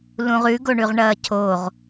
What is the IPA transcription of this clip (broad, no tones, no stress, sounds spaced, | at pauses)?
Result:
l ũ ʁ ʉ ɡ o ɳ ʉ ʁ ɳ ɐː cʰ o ʁ